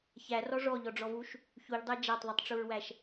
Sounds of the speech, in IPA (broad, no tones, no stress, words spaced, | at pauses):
çærɔ ʐɔʎɔɖ͡ʐɔvuʃ | çuʎdˤæ d͡ʒætˤðˤutˤʈ͡ʂuɹwæʃ